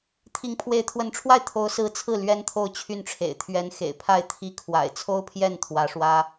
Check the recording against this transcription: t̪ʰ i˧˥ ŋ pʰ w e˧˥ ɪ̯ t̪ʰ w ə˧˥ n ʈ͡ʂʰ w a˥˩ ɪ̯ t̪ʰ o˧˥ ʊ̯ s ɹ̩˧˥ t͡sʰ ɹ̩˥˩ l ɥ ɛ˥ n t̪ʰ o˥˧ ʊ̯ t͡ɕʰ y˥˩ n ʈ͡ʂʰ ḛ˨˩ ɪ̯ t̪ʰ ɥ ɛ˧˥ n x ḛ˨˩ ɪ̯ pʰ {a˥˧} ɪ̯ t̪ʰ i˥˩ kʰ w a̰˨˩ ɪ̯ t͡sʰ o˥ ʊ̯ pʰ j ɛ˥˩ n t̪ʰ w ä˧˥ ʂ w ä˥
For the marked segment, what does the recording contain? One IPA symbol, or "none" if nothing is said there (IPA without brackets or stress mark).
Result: a˥˧